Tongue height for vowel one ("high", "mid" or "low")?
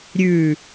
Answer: high